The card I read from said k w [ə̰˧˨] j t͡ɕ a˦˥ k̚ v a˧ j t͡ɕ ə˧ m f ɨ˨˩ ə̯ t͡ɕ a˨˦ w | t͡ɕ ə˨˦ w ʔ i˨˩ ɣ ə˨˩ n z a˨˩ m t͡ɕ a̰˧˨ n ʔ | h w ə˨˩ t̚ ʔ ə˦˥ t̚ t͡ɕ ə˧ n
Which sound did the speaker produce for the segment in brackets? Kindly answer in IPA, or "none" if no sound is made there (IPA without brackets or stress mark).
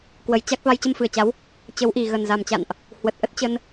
ə˨˩